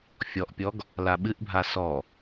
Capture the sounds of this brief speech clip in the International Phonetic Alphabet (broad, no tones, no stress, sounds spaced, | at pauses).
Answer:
fʲ ɔ ʔ pʲ ɔ ɡ | l a ɓ ɨ ʔ bʱ a s ɔ